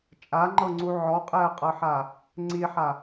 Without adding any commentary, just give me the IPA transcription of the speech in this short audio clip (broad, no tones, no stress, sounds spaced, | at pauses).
t͡ʃʼ a ŋ͡ǃ ɤ ŋ͡ǀ u ʕ ɔ qʼ ɛ ɐ̯ qʼ ɤ ħ a | ŋ͡ǀ i ħ a